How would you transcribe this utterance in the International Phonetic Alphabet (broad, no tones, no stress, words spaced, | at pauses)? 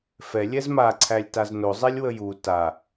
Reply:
fɛ lʲɛzmaǀʰælʲ taznozˤɛlʲ wəju ta